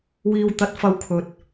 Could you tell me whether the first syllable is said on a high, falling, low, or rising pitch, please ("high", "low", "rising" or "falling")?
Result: low